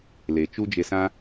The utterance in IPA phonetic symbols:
l e˨ t͡ʃ u˦ d͡ʒ e˧ s ã˦

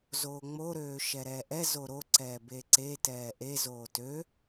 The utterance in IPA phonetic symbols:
z oː ŋ͡m o ɾ øː ʃ ɛ ɾ ɛː ʔ ɛ z o ɾ o ǀ ɛː b e ǀ e t ɛː ʔ e z oː t ø

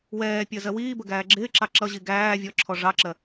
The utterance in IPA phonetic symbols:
w ɛː pʲ ɜ z ɜ w iː b ə ɡ æː ɡ͡ǁ ɪː ǁ ɑ ǁ ʌ ʑ i ɡ æː vʲ ɔ ǁʰ ɔ ʐ ɑ ǁ ɜ

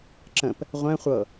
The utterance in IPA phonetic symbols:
ǁ ə̃ p | ʁʷ ɛ̃ χʷ ɤ

